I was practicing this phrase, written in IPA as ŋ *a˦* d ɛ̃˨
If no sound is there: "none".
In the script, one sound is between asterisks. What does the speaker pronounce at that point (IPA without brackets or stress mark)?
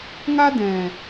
a˦